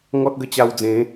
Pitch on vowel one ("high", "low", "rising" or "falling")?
high